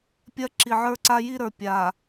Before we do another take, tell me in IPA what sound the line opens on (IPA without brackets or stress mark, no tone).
pʲ